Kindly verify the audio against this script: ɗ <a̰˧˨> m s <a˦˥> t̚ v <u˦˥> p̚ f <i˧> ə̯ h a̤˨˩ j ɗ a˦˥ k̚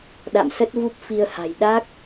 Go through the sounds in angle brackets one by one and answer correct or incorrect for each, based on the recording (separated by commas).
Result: correct, incorrect, correct, correct